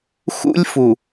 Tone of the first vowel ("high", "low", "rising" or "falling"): high